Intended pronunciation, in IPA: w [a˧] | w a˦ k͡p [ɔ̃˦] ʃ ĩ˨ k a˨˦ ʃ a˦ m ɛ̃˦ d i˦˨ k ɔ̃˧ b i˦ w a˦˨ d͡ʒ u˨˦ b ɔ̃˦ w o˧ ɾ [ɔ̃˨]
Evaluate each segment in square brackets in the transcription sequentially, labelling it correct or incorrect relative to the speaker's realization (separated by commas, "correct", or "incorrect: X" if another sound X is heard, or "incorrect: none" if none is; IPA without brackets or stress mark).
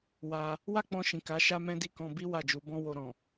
correct, incorrect: ɔ̃˧, correct